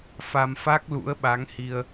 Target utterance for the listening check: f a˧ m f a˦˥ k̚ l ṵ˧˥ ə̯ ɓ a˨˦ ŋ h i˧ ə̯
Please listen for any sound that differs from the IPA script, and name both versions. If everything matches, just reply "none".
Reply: none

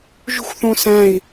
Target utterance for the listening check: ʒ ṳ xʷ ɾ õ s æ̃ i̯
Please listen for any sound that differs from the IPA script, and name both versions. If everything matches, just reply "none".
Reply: ɾ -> θ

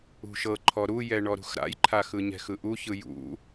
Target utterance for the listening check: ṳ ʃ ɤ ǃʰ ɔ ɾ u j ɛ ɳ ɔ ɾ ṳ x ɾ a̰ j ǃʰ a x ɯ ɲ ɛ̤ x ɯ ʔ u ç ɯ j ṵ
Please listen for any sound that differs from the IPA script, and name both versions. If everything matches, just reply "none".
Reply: none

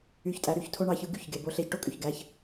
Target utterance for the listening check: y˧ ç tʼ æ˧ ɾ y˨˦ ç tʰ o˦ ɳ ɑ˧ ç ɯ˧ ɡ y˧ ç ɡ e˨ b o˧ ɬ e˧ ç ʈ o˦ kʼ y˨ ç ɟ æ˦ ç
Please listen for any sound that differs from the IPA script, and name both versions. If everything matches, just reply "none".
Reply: ɟ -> ɡ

